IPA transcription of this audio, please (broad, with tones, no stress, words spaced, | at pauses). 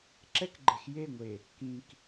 ǁɛ˦kɡ͡ǃe˨xje˦˨ŋʷe˨ | kĩ˨k